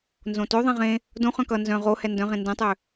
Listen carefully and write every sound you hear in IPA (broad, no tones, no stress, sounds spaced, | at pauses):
n z õ t ø ðˤ ɛ̃ ʁ ẽ | d õ χ œ̃ k ʌ n z œ̃ ʁ o h ɛ n d œ̃ ʁ ẽ n d ɛ̃ tˤ ø